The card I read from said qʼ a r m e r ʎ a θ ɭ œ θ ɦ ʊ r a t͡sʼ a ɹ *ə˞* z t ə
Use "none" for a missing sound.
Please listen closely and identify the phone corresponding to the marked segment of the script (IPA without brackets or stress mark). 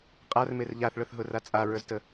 ə˞